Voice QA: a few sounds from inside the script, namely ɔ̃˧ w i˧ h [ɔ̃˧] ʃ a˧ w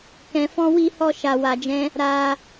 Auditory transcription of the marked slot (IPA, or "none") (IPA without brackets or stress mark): ɔ˧